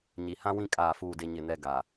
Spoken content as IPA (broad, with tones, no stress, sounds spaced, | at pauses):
ɲ i˨ h ã˦ w ĩ˦ kʼ aː˦˨ f uː˦˨ d e˦ ɲ ɪ˦˨ n ɛ˦ ɡ a˨